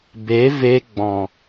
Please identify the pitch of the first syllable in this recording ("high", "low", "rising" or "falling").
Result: rising